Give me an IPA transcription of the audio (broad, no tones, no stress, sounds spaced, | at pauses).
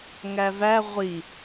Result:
ŋ æ v æ ʁʷ i